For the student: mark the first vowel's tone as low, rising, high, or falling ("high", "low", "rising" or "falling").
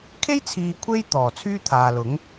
high